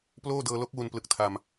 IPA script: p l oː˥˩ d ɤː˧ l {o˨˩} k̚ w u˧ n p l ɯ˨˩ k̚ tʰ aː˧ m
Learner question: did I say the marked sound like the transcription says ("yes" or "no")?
no